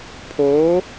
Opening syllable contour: rising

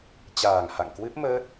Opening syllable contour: low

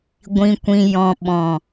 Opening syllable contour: low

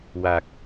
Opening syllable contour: low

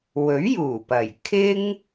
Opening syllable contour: rising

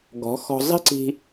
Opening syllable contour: rising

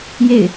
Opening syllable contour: falling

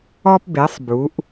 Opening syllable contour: high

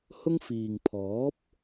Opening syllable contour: high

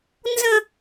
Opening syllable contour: high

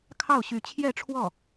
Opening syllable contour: falling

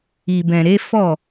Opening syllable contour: low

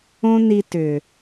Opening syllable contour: high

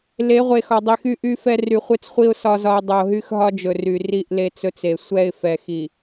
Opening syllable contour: rising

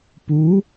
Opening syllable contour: rising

